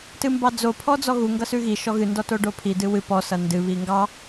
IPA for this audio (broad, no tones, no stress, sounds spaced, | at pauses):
t ɨ m b ɑ d͡z o pʰ ɔ d͡z ɔ ɣ u ŋ ɡ ʌ s ʉ ɣ i ʃ ɔ ɣ ɨ n d ɔ t o ɖ o pʰ i d ɨ w ɨ p ɔ s ʌ n d ɨ β i ŋ ɡ ɑ